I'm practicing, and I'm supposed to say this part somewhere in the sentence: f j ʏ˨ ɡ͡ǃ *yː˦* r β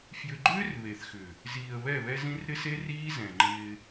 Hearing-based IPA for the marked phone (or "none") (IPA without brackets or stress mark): ʏː˦